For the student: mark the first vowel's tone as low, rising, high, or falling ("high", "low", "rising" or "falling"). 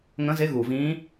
rising